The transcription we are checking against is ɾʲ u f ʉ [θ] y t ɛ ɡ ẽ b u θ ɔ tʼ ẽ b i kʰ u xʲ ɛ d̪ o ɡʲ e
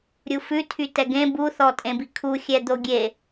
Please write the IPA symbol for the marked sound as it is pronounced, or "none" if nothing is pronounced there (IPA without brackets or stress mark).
tʰ